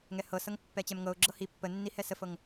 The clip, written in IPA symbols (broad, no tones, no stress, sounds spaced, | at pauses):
ŋ ɛ h ɤ s ɤ ŋ pː ɛ t͡ɕ ɛ m ŋ ɤ ʊ̯ ɡ͡ǁ ɤ h i pː ə nː i h ɛ s ə f ɤ ŋ